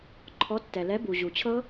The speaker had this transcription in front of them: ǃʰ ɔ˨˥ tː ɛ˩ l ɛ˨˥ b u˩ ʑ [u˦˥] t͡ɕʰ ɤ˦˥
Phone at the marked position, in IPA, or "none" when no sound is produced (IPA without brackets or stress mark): u˩